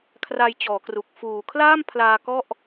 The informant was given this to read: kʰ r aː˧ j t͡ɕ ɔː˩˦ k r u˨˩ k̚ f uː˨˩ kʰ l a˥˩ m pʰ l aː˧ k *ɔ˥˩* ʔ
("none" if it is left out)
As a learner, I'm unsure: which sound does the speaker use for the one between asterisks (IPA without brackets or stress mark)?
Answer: ɔ˥˩